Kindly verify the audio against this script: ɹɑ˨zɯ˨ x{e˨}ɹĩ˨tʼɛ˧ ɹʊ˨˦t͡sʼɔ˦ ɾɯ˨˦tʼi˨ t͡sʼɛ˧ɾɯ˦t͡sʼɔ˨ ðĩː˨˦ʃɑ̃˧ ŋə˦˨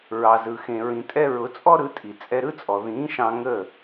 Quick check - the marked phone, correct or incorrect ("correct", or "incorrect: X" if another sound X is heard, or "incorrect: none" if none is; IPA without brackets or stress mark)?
incorrect: ẽ˨